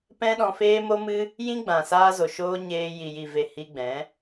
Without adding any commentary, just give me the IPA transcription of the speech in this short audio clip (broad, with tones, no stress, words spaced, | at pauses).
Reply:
pɛ̃˦ɗɔ̃˧feː˦ mo˦mɨ˦ | jĩ˦ɡ͡bã˨ saː˧zo˨ʃoː˧ ɲeː˧ ji˨ji˨ve˨ hi˧ɡ͡bɛ̃˨˦